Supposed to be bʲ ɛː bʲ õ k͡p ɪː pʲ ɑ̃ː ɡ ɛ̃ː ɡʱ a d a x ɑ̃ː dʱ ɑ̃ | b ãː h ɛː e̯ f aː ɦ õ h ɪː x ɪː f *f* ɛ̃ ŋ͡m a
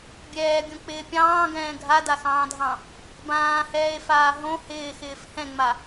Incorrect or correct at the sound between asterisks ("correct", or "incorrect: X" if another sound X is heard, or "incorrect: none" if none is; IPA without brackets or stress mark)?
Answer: incorrect: h